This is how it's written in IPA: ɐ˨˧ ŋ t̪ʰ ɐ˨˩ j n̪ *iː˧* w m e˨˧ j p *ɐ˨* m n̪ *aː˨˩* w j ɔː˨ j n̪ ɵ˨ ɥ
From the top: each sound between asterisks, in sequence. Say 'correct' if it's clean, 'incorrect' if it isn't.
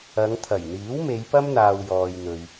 incorrect: iː˨˥, incorrect: ɐ˥, incorrect: aː˧

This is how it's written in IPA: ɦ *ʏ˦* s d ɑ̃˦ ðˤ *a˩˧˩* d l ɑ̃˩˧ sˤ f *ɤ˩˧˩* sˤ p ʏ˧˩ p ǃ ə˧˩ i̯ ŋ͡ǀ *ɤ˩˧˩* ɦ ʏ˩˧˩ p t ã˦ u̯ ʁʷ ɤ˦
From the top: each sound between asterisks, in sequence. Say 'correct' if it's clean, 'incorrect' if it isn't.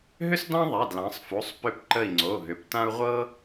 correct, correct, incorrect: o˩˧˩, incorrect: o˩˧˩

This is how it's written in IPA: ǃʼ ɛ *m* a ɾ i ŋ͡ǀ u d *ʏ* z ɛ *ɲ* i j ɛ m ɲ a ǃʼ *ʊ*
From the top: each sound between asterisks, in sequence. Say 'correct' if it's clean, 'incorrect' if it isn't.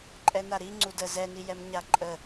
incorrect: n, incorrect: ə, incorrect: n, incorrect: ə

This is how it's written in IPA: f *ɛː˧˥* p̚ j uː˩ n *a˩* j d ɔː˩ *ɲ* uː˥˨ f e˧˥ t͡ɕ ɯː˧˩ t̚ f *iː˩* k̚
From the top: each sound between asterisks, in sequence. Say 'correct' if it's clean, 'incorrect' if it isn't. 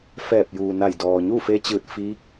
incorrect: ɛː˧˩, incorrect: a˧˩, correct, incorrect: iː˧˥

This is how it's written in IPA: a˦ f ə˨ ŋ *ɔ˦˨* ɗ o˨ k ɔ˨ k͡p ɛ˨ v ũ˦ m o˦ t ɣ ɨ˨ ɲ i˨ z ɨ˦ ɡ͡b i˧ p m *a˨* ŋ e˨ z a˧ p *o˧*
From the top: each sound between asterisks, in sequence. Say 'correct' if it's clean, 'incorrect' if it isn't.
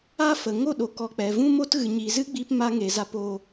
incorrect: o˦˨, incorrect: a˧, correct

